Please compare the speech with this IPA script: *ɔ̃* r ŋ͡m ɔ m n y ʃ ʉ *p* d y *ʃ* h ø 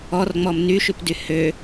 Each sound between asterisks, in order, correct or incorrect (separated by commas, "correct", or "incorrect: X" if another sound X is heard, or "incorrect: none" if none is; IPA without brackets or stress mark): incorrect: ɔ, correct, incorrect: none